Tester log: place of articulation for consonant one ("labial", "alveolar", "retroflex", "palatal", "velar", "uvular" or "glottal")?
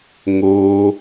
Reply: velar